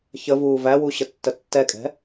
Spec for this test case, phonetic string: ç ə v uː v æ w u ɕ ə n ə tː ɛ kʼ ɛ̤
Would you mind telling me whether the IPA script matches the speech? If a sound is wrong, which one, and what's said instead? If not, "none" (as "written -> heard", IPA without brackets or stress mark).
n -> tː